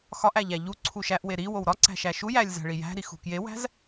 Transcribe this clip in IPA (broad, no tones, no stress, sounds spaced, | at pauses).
x ɒ ʔ æ ʎ æ ʎ u ǀʰ u ʃ æ ʔ w e ɾ i w o w ɾ ɒ ǀ æ̤ ʃ æ ʃ u j æ lʲ z æ̤ ɭ i j æ̤ ɾ i x ṳ k j e w æ̤ z